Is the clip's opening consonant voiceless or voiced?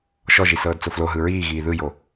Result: voiceless